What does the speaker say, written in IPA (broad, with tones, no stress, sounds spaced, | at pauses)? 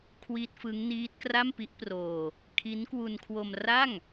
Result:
kʰ w i˦˥ t̚ f ɯ˦˥ ŋ n iː˦˥ t̚ k r a˥˩ m p i˦˥ ʔ p r oː˧ | kʰ i˦˥ n k w u˧ n kʰ w o˧ m r a˥˩ ŋ